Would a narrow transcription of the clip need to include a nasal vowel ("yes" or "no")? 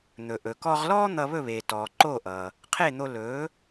no